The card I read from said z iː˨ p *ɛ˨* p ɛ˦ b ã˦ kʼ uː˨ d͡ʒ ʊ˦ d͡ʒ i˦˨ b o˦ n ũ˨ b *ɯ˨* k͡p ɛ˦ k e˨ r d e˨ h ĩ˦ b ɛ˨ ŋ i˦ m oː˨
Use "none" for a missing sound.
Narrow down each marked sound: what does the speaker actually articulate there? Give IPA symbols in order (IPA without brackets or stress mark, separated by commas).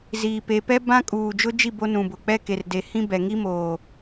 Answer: e˨, ʊ˨